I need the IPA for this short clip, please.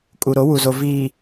kʼ u˨ ɾ o˨˦ w u˨ z o˨ v iː˨

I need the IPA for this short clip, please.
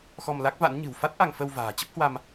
x ɔ˧ m l a˦˥ k̚ v a̰˧˥ n ɲ ɨ̤˨˩ w f a˦˥ t̚ ʔ a˧ ŋ f ə˧ w v a̤ː˨˩ t͡ɕ ə˦˥ p̚ h w a˧ m

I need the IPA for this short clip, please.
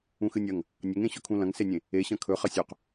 ũ x ɨ nʲ ɐ ŋ | nʲ ɐ ŋ ẽ ɕ ɵ kʰ ũ l ɐ̃ ŋ s e nʲ ẽ | e ɕ ɐ̃ kʰ ɵ χ ɐ sʲ ɵ q

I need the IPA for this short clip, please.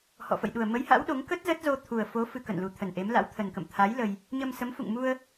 h ɔ̰˧˨ f ə̰˧˨ j ɗ u˨˩ ə̯ m ə˨˦ j h a̰˧˥ w ɗ o˨˦ ŋ k ə˦˥ t̚ z ə˦˥ t̚ z o˧ t̪ʰ u˨˩ ə̯ f o˨˦ f ɨ˧ k ə̰˧˨ n l u˨˩ t̪ʰ ə˨˩ n ʔ e˨˦ m l a̰˧˥ w t̪ʰ ə˨˩ n k ə̰˧˨ m t̪ʰ a˨˦ j l ə˧ j | ɲ ə˧ m s ə˨˦ m f ṵ˧˨ ŋ m u˧ ə̯

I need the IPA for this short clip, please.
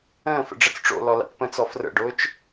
ə̃ː f ə̰ ɖ͡ʐ ə t͡s ʈ͡ʂ o̰ l ɔ l a̰ t p ə̃ t͡s ɔ f r ə̰ ɖ ʊː t͡ʃ

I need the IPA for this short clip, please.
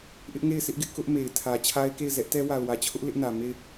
ʔ ɪ˦ ʔ ŋ e˦˨ ɪ̯ s ɪ˦ ʔ ɡ ɪ˦ ʔ k ʊ˦ ʔ m e˨ ɪ̯ tʰ ä˨ t͡ɕʰ a˦ ɪ̯ k e˦˨ ɪ̯ z ɛ˦ ʔ t ɛ˦ w a˨ ʊ̯ w ä˨ t͡ɕʰ ʊ˦ ʔ l ɪ˦ ʔ n ä˨ m e˦˨ ɪ̯

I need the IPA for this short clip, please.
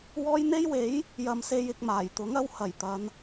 w ɔː˥ j n̪ e˥ j w e˨˥ j | j ɐ˨ m s e˧ j ɪ˧ k̚ m aː˨˩ j t̪ ʊ˨˥ ŋ ɐ˧ w h ɐ˨˩ j t̪ ɐ˨˧ n

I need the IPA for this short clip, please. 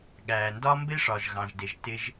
ɠ æː˨ n d ɒ˦ m b ɪ˦ ʂ ɒ˨ ʒ ɣ ɑ̃˨ ʒ d ɪ˨ ʒ t ɪ˧ ʒ

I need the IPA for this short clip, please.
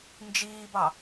n d͡ʒ iː b ɑ

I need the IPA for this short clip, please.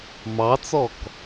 m ɑ t͡s ɔ k

